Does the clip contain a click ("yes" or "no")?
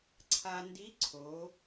yes